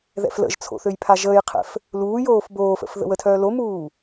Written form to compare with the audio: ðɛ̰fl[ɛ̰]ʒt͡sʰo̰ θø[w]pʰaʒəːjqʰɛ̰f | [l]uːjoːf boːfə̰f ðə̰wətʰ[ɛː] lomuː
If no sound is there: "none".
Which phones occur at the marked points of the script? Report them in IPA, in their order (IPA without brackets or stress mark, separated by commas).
ə̰, j, l, œː